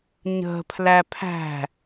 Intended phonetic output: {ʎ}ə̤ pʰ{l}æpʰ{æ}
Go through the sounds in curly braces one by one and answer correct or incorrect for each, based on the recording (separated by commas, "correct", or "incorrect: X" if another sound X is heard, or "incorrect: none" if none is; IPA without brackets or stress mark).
incorrect: ɲ, correct, incorrect: æ̤